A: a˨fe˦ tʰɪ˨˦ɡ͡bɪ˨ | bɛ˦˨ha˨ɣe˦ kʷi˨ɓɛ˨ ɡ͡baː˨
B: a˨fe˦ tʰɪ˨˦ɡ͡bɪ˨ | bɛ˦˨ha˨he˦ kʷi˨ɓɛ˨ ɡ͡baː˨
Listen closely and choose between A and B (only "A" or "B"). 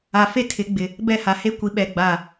B